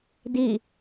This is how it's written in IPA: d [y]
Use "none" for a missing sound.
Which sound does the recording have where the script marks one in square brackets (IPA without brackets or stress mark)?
i